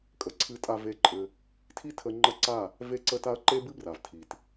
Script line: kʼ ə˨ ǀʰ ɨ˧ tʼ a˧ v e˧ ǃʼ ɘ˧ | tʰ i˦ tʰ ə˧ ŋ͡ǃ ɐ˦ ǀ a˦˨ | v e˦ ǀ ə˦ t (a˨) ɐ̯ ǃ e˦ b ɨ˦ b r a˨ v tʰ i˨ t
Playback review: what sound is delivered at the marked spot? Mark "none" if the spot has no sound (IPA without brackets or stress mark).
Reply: a˦